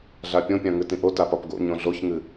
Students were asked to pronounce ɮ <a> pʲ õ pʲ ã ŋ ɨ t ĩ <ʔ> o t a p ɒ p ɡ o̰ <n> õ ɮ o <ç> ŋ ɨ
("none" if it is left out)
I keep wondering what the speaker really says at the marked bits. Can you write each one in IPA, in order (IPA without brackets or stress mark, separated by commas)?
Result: a, ʔ, ɲ, ç